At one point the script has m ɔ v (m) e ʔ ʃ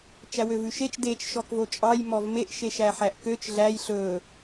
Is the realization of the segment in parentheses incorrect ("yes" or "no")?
no